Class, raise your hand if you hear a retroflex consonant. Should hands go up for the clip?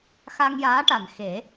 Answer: yes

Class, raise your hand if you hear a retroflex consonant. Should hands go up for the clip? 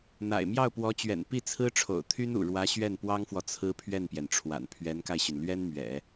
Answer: yes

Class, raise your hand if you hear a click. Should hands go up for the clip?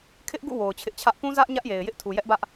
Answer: no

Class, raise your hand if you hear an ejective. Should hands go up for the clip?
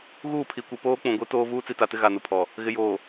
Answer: no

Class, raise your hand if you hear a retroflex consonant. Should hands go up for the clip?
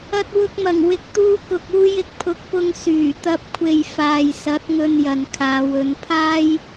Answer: no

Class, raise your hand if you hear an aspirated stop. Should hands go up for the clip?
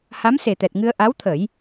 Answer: yes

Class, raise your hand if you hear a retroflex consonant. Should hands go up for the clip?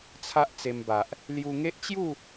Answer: no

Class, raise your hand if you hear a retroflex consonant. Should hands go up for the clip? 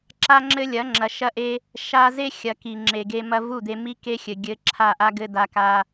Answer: no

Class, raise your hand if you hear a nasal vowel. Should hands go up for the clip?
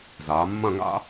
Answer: yes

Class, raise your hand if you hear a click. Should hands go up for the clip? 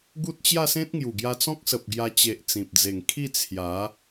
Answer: no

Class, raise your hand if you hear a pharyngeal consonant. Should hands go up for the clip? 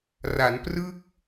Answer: no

